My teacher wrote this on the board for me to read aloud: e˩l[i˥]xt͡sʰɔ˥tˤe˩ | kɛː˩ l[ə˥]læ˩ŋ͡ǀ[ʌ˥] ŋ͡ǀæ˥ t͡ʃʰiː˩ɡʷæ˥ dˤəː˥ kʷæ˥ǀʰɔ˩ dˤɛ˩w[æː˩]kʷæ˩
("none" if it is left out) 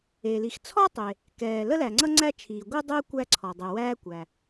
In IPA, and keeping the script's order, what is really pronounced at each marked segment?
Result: i˩, ə˥, ʌ˥, æː˥

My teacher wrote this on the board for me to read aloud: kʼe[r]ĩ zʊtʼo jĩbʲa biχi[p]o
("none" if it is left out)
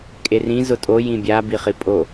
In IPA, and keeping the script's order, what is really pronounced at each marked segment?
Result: r, pʼ

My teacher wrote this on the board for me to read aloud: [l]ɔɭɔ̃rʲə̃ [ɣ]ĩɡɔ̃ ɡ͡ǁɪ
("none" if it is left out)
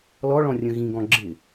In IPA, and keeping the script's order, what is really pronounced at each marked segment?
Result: l, ɣ

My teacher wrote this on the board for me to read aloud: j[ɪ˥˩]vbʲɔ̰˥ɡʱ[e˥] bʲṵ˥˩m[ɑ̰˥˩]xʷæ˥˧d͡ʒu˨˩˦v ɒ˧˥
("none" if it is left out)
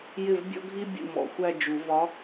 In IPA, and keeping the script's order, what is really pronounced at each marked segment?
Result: ɪ˥˩, i˥, ɔ̰˥˩

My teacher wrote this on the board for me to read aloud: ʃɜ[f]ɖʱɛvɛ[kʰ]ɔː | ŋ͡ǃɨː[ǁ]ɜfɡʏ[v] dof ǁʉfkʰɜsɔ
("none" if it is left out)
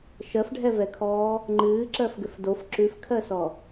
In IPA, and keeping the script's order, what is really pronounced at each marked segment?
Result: f, kʰ, ǁ, f

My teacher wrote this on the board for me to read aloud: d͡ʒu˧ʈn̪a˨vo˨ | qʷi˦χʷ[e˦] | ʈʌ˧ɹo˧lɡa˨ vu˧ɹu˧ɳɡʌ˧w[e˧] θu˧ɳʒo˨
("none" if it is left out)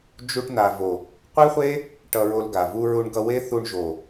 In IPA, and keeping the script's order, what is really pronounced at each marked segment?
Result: e˦, e˦

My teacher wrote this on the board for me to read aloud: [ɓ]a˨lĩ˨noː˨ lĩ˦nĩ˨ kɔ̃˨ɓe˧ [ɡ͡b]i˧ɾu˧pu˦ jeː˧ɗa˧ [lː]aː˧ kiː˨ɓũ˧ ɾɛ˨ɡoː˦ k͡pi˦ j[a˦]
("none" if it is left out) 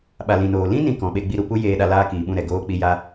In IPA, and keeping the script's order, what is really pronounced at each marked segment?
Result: ɓ, ɡ͡b, l, a˦

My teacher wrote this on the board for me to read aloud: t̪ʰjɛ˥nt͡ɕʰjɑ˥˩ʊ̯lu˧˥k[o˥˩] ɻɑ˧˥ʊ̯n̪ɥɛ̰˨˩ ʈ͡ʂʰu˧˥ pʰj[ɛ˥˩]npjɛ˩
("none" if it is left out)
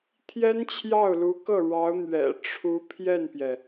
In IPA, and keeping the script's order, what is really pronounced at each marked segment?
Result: ɤ˥˩, ɛ˥˩

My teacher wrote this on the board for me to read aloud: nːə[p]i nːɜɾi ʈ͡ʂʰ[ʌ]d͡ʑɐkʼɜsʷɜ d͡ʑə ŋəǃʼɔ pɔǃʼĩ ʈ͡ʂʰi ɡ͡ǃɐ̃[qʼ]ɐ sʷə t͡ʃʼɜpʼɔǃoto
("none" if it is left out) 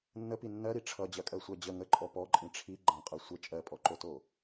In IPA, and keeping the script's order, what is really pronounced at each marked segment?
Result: p, ʌ, qʼ

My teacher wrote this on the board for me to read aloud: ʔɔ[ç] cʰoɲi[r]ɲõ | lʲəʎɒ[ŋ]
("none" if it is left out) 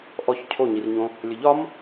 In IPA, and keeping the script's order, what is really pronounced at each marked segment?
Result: ç, r, m

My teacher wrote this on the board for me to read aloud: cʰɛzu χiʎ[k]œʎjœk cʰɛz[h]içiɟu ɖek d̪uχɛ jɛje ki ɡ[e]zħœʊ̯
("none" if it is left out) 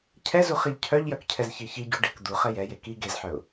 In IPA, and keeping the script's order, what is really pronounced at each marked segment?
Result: cʰ, ç, e

